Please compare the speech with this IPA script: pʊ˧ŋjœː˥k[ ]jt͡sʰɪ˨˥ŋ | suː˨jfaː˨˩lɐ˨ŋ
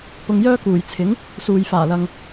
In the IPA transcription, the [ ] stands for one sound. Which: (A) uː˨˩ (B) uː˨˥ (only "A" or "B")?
A